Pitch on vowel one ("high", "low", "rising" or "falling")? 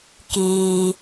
low